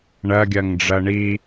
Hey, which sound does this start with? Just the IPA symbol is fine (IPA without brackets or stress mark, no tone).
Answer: ɳ